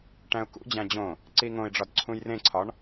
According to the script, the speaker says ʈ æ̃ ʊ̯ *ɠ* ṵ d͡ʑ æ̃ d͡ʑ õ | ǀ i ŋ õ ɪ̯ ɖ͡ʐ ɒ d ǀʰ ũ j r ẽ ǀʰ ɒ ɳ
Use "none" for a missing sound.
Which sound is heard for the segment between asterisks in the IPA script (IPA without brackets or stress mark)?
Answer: k